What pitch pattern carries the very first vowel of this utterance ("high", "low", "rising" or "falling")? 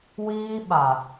high